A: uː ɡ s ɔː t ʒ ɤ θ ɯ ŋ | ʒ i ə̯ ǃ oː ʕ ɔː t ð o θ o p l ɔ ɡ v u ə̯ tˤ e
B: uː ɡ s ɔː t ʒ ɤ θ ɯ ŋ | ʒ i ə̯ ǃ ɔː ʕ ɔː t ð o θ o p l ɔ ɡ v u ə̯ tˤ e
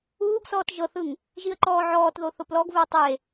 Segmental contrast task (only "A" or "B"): B